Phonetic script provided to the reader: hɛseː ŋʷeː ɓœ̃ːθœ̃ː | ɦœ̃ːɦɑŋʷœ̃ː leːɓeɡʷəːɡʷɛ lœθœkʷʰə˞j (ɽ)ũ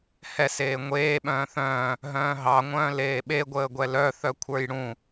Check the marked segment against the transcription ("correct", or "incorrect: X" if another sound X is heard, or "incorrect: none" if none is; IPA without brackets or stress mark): correct